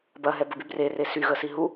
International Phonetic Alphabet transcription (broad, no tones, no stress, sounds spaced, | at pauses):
b ɐ ɦ ɛ b ə b y b r e r e s y ɣ ə s i ɦ u